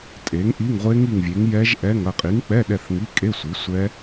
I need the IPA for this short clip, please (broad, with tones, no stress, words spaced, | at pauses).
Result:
tʼe˨˥ŋʔi˧˥˧ŋʁʷe˦˥ŋ i˦˨ŋvʲe˨˥ŋ jɛ˦˥ʒʔɛ˧˥˧ŋ ɐ˦˨qʼi˨˥ŋk͡pɛ˧˥˧ɗɛ˦˨θ ŋi˧˥˧kʼe˧˥˧sʷi˨˥ sʷɛ˦˥